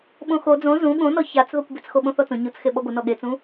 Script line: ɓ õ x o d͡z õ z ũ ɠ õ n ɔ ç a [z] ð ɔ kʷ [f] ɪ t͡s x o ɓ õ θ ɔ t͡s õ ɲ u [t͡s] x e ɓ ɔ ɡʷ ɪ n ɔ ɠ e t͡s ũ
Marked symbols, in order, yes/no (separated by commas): no, no, yes